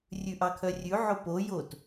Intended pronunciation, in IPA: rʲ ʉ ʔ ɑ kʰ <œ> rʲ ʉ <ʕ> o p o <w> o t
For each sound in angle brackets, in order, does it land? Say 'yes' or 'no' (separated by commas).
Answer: yes, yes, no